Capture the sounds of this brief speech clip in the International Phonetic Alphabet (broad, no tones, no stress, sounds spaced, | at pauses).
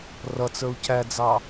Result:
r ʌ t͡s ə˞ u̯ c æ d͡z ɑ